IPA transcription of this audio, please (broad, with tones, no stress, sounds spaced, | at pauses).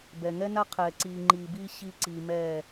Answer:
b ɛ˨ ŋ ɛ˦ n a˦ qʰ ɛː˨ ǀ iː˨ ŋ͡ǃ iː˨ b iː˦ ɕ i˦ ǀ iː˨ m ɛː˦˨